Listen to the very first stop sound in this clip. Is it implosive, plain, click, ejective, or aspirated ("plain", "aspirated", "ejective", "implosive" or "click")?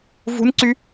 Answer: click